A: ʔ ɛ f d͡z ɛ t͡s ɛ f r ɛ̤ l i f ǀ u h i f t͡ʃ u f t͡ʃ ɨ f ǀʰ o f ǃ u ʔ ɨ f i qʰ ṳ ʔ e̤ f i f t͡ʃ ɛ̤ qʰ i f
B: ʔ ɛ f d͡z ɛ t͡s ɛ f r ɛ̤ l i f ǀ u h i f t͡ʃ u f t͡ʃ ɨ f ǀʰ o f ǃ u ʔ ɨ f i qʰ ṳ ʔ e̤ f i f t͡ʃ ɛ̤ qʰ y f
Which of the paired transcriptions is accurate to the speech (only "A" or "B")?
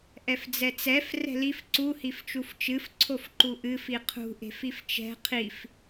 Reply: A